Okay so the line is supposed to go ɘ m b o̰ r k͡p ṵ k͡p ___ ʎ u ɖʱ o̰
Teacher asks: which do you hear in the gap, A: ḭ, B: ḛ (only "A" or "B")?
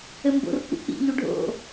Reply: A